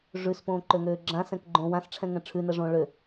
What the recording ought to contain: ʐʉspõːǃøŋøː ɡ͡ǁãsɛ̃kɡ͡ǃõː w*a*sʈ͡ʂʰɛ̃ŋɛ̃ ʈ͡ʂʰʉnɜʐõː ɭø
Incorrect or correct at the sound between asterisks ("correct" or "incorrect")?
incorrect